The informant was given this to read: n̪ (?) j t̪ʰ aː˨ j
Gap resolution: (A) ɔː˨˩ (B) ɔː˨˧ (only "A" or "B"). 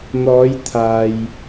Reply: B